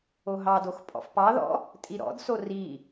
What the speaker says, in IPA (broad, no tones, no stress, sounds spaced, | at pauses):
o ɦ ɑ d o x pʼ ɔ̰ f p ɑ ð ɔ̰ | tʼ i ɾ ɔ̰ d s o r i